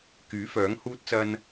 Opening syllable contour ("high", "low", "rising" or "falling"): rising